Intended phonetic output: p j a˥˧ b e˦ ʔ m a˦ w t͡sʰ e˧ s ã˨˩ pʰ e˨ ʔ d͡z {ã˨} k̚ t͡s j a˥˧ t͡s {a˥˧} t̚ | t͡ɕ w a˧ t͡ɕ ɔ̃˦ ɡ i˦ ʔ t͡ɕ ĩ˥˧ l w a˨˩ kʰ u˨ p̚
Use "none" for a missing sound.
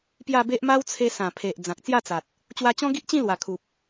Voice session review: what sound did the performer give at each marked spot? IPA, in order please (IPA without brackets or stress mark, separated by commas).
ã˨, a˨